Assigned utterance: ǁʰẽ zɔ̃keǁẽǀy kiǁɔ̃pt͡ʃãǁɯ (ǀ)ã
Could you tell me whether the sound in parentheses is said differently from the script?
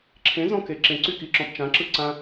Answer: no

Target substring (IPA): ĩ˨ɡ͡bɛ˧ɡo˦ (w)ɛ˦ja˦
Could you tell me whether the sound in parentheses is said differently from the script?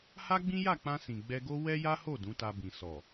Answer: no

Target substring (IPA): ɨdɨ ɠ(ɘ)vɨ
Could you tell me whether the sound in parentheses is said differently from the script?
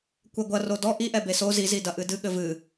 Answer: no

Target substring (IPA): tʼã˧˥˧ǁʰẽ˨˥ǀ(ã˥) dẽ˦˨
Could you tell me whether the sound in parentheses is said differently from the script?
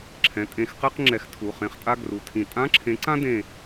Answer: no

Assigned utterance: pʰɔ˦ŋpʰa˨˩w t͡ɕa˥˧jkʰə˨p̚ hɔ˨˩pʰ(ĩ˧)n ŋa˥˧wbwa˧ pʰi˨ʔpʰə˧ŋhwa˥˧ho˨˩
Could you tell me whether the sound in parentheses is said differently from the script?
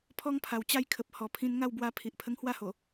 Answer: no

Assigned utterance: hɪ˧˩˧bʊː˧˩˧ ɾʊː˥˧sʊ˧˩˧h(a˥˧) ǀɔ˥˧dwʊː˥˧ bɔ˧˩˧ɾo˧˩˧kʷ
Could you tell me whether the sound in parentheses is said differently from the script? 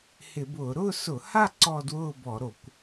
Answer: no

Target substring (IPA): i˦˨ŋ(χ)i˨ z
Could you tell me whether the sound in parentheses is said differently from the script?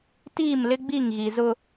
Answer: yes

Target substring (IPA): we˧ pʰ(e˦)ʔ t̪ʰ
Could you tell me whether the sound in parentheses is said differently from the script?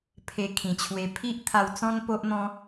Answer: yes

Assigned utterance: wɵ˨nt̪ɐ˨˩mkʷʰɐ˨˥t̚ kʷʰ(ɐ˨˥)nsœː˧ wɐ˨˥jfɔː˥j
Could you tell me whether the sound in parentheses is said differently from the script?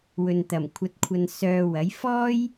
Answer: yes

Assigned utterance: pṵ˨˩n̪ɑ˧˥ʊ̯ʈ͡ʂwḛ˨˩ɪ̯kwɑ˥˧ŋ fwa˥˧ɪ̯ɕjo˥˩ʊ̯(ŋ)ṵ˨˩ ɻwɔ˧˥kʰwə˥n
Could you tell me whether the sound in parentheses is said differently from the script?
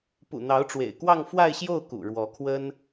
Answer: yes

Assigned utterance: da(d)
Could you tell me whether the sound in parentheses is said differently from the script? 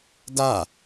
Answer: yes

